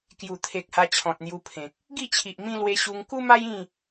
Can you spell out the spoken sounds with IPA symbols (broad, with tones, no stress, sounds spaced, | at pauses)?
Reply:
k j u˨˩ t̪ʰ e˨ k̚ h a˧ t͡ɕʰ ɔ̃˨ t̚ n̪ j u˧ pʰ ẽ˨ k̚ | ɡ i˥˧ t͡ɕʰ i˨ ʔ m ĩ˦ l w e˧ ɕ u˧ ŋ k u˦ m a˦ j ĩ˥˧